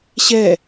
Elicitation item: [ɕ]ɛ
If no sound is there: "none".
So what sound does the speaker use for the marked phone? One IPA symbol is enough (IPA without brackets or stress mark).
ɕ